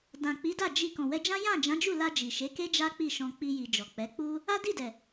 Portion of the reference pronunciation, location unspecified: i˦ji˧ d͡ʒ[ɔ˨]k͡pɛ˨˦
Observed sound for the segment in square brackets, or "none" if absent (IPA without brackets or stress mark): ɔ˨